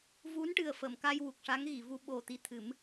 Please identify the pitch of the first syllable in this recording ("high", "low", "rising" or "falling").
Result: rising